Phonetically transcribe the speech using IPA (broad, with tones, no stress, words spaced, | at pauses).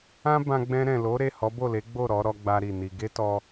ã˦bã˧ ɡ͡bɛ̃˧ɾɛ̃˨lo˨˦ɾe˦˨ hɔ˨˦bo˦˨le˨˦ɡ͡bo˦˨ ɾɔ˨˦ ɾɔ˦ɡ͡ba˦ɾi˦˨ni˧ ɡe˦tɔ˧